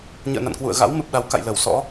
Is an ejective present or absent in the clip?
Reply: absent